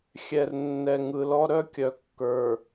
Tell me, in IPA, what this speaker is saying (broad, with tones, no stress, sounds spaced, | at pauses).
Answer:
xʲ ɛ˨ r nː ɛ˨ ŋ ɯ˨ l ɔ˦ ɾ œ˦ kʲ œ˨ kː ə˞˨